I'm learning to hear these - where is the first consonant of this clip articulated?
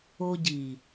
palate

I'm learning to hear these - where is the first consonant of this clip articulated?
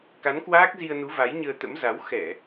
velum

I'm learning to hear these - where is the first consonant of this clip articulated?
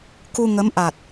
velum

